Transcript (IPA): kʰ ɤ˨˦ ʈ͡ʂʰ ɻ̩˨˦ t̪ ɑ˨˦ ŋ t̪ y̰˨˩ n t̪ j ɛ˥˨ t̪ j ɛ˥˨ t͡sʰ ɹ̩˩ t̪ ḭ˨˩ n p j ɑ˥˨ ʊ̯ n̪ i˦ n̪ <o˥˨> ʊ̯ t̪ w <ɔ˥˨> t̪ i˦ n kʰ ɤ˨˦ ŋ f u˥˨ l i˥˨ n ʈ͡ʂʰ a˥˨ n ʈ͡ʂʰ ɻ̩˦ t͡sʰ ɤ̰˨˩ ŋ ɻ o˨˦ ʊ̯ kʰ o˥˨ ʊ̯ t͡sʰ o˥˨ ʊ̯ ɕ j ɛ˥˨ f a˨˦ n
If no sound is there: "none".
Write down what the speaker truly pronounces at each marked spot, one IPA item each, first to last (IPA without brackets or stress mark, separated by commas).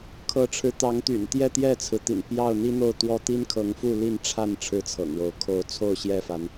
o˥˨, ɔ˥˨